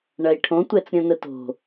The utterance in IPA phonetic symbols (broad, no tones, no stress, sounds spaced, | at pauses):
ɳ ɐ i̯ ʈʰ õ tʷ ɛ t͡s ɾʲ õ n ə t o̤